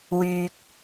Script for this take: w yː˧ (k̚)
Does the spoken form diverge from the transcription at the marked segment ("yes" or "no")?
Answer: no